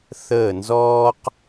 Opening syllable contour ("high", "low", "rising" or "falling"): falling